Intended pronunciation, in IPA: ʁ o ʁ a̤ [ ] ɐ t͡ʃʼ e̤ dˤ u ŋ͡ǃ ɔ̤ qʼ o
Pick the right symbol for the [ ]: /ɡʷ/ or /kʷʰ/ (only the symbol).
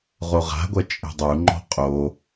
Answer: ɡʷ